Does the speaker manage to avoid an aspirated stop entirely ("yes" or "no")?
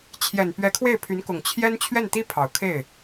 no